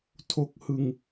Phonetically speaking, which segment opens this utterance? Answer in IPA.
tʰ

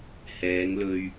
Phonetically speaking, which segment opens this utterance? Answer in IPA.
h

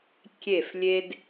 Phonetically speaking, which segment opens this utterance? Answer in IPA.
kʲ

